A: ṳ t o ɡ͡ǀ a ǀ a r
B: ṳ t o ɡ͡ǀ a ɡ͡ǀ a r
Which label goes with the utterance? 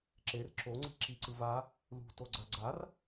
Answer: B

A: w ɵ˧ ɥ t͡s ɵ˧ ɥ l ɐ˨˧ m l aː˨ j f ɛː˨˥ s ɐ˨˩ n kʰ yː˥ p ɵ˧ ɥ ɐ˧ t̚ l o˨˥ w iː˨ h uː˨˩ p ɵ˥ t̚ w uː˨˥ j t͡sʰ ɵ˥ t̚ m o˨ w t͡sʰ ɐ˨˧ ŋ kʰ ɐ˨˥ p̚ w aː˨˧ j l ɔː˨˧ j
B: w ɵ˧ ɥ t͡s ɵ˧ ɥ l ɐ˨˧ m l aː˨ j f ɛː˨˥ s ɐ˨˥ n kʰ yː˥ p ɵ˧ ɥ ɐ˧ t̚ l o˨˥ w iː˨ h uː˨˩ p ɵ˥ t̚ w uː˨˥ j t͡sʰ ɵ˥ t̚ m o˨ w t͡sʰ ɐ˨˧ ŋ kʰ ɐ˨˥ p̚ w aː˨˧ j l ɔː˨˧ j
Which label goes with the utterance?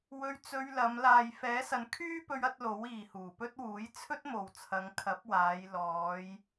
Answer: B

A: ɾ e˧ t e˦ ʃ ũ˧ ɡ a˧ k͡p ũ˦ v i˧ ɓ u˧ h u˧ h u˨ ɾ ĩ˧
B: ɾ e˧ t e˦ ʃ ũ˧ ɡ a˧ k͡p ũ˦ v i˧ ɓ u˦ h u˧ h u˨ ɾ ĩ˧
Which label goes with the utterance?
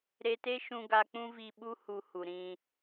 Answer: B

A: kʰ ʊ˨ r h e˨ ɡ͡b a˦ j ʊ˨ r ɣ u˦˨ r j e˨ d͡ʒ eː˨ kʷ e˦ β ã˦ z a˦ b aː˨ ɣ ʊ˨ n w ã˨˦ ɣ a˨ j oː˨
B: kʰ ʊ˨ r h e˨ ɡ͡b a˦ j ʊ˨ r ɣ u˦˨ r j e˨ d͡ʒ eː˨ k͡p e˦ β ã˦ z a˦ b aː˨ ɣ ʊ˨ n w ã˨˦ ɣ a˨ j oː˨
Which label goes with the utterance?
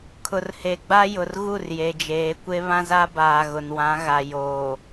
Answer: A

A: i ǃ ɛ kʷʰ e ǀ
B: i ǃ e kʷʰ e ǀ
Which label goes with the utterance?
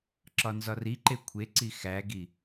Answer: B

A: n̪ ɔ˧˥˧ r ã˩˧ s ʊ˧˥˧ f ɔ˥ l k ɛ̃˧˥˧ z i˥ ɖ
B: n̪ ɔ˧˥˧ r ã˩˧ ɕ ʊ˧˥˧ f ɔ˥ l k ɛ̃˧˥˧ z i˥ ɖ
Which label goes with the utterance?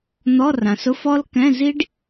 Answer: A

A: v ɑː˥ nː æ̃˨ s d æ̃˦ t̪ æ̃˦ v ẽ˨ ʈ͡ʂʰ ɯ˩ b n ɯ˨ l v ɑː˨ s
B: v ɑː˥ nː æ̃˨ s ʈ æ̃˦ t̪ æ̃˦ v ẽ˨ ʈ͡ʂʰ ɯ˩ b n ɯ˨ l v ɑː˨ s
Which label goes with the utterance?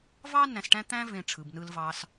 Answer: B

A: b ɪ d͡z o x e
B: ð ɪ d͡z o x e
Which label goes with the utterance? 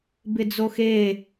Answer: A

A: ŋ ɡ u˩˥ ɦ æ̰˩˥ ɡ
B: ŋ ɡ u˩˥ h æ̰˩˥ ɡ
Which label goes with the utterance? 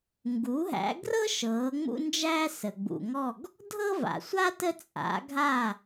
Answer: A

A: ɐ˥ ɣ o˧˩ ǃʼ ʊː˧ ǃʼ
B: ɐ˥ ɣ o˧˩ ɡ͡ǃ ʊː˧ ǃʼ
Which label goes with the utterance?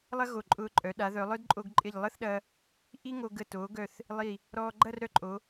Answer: A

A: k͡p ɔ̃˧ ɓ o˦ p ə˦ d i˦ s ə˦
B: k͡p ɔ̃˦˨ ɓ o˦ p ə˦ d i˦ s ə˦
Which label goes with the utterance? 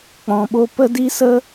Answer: A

